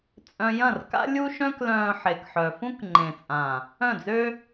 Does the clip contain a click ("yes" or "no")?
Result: yes